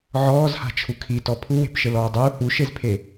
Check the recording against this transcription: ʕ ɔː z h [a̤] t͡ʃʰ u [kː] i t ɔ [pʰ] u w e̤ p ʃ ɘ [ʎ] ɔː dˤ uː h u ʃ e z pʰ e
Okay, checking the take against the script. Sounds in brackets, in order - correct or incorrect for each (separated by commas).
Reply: correct, incorrect, correct, incorrect